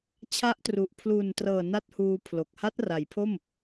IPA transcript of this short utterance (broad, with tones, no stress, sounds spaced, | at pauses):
t͡ɕʰ a˦˥ ʔ t r u˨˩ ʔ pʰ l u˨˩ n t r ɤː˨˩ n a˥˩ t̚ h uː˧ pʰ l o˨˩ k̚ h a˦˥ t̚ r a˩˦ j pʰ o˥˩ m